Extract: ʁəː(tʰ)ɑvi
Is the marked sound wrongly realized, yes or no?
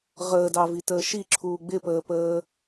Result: yes